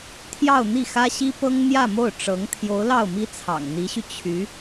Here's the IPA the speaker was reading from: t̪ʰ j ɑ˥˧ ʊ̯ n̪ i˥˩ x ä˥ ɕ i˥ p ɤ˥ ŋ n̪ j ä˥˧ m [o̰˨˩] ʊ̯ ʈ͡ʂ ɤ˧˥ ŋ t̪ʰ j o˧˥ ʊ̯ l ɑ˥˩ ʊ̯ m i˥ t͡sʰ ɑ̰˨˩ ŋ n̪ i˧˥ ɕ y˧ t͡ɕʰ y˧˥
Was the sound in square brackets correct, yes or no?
no